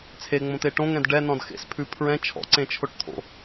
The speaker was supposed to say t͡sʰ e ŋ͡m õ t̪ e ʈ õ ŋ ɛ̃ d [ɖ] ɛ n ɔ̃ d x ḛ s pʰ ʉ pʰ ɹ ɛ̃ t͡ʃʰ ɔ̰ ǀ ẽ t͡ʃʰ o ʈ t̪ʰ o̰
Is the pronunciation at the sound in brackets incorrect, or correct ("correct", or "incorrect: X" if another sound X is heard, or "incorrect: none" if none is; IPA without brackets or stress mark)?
correct